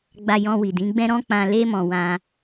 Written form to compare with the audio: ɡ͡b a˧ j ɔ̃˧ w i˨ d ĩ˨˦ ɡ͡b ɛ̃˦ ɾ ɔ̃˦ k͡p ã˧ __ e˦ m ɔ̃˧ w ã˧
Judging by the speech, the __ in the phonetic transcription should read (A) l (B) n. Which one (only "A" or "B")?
A